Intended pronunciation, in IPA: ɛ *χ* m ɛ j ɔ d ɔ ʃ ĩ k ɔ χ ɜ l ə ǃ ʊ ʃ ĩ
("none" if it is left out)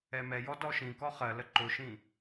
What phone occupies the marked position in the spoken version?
none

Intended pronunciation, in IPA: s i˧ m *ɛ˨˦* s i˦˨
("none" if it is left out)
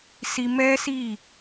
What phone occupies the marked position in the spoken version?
ɛ˦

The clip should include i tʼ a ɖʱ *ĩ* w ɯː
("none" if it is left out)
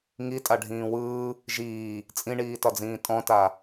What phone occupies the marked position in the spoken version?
ĩː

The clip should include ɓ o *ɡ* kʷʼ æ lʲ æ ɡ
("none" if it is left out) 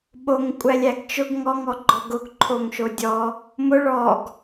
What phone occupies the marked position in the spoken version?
ŋ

